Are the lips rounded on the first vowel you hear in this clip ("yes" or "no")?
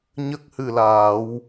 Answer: no